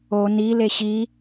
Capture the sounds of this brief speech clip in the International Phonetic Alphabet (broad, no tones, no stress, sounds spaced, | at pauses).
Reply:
o n i l e ɕ i